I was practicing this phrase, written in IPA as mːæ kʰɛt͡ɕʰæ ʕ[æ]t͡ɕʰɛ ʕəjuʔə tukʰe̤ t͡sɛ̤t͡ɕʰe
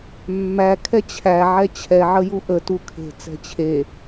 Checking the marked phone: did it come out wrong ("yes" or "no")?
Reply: yes